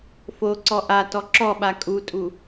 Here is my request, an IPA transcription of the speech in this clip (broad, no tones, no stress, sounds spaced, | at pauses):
f o ǀ ɔ ʔ a t ɔ ǁ ɔ ɓ a kʼ u tʼ u